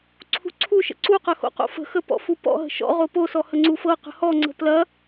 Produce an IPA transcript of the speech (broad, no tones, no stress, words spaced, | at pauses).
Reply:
ǀʰṳǀʰuʃə̰ ǀuqɐ xo̰qo̰fə̤xə pɔ̰fupɔ̰ɦə̤ ʃɔ̰ ʁoposɔ həŋ͡ǀufɤqə̤ hɔŋ͡ǀə̤ plɐ